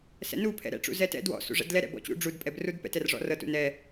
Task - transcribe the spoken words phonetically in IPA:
s ɛ̰ n u pʰ ɛ̰ ɾ ɛ̰ ʈ͡ʂ ṵ z ɛ t ɛ̰ d w ɔ̰ s ṵ ʐ ɛ̰ d l ɛ ɾ ɛ̰ b ɔ̰ t͡ɕ ṵ ɖ͡ʐ u d pʼ ɛ b r u d p ɛ̰ t ɛ r ʐ ɔ̰ r ɤ t ṵ n ɛ

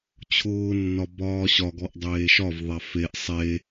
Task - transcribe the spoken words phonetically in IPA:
t͡ɕʰ ʊː nː ɒ b ɒː ɕ ɒ ɡ ɔ ʔ dˤ eː ʃ ɒ v ðˤ a f e ʔ sˤ e

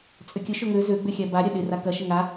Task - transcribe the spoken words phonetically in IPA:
t͡sʼ ʏ kʲ ʊ ʃ ʊ ŋ ø z ø ɡ͡b ʏ xʲ a b a ɾʲ ɐ ɗ ɪ r a k ɐ ʃ ə ŋ a

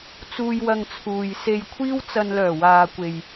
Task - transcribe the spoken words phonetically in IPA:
t͡s uː˧ j w ɐ˧ ŋ t͡sʰ uː˨ j s e˧ j kʷʰ iː˥ w t͡s ɐ˧ n l œː˨˩ w aː˨ kʷ e˨ j

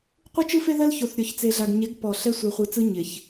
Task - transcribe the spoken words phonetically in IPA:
qʷ ɯ˦ t͡ʃ ɯ˦ f e˦ ð ɜ˦ l ç o˨ θ ɾʲ ɔ˨ ç t͡s e˨ ɮ a˨ ɡ ɲ e˨˦ ɡ p ɔ˨ ɬ ɛ˦ sʷ ɜ˨ χʷ ɯ˨ t͡s ɯ˦ ɲ ɪ˨ ç

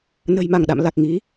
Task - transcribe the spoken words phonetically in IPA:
n ə̤˨˩ j m a˧˩ ŋ ɗ a̰˧˨ m l a˨˩ k̚ ŋ i˨˦

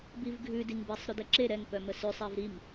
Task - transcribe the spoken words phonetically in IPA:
b i v ɡʱ ʉ d i ŋ b e sˤ ɾ ʉ d ɛ ǁ e ɾ ɛ ŋ p œ m ə s ʉ sˤ ɛ v ɾ i m

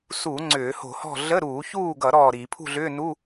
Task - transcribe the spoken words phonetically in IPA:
s u˧˩˧ ŋ͡ǀ ʏː˧˩˧ h o̤˧˩˧ h ɔ̤˥˨ ɮ ə˧˥˧ ɾ uː˧˩˧ ç uː˥˨ ɡ ʌ˧˩˧ ɾ ɔː˥˨ ɾ i˧˩˧ pʰ ṳ˥˨ ɮ ʏː˧˥˧ n u˧˥˧

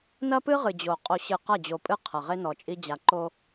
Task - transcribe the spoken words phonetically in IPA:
n ɐ˦ p ɨ˦ ʁ ɨ˨ d͡ʑ o˨ qʼ o˨ ɕ ɨ˨ q ɐ˦˨ d͡ʑ o˨ pʼ ɨ˦ qʰ ɐ˨ ʁ e˦ n ɔ˨ t͡ʃʼ i˦ d͡ʑ a˨ ǃ o˦

